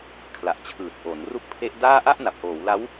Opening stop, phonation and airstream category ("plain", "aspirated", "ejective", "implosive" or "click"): aspirated